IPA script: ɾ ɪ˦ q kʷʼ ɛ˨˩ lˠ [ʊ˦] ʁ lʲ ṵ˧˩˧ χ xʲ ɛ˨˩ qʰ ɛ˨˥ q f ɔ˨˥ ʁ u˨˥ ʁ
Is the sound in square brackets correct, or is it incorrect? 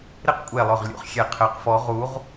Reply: incorrect